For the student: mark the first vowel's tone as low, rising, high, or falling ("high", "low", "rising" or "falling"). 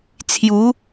rising